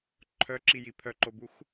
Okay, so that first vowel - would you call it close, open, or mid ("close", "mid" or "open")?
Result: mid